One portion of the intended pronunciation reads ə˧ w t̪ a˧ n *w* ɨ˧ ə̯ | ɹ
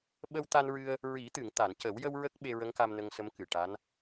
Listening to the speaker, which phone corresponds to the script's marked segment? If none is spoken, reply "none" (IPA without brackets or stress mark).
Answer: ɹ